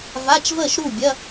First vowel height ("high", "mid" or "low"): low